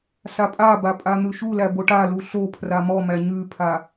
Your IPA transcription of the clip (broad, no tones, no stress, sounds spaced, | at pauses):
s a pʼ a b a pʼ a n̪ ʉ ʃ u l æ b o ʈ a l u ɬ o pʰ r a m ɔ m æ ɲ ʉ pʰ a